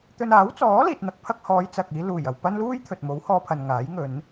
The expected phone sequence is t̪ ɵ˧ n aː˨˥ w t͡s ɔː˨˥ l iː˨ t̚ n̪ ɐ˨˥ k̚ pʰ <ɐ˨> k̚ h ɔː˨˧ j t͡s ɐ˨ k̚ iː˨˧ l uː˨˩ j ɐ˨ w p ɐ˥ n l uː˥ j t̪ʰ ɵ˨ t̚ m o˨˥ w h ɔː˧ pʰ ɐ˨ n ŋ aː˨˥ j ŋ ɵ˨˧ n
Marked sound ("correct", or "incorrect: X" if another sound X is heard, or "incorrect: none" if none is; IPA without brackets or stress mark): incorrect: ɐ˧